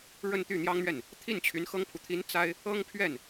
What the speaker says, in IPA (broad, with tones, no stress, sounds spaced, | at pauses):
ɻ ə˥˧ n t̪ y˥˩ n̪ j ɑ˥ ŋ n̪ ɥ ɛ˥˩ n | t̪ʰ i˥˩ n t͡ɕʰ y˧˥ n x ɤ˥ ŋ pʰ u˨ t̪ʰ i˧˥ n t͡s a˥ ɪ̯ | ɤ˥ ŋ pʰ ɥ ɛ˥˩ n